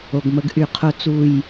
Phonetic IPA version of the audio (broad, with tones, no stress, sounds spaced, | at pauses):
o˨ ɡ m ə˦ ɡ ʔ y˨ qʰ o˦ t͡s u˦˨ j